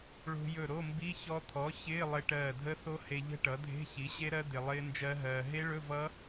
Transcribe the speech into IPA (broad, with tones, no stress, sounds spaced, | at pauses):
ɭ o̤˧ j ɵ˧˩ ɾ o˧˥˧ m b i˧˥˧ ç ɔ˧ t̪ʰ ɔ˩˥ ç ɪː˧˥˧ lˠ ɪ˧ ʈ ɜː˧˩ dʱ ə˦˥ θ o˦˥ h e˧ ʎ ə̤˦˥ ʈ ʌ˩˥ dʱ e̤˧˥˧ ç i˩˥ ɕ e˦˥ ɾ ɜ˦˥ d̪ ɪ˧ lˠ ɪː˦˥ n d͡ʒ ɜ˦˥ ɦ ɜː˧ ɦ e˦˥ ɭ ɵ˧˥˧ v ʌ˦˥